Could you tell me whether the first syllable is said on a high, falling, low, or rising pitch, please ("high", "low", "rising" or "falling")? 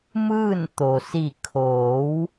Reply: falling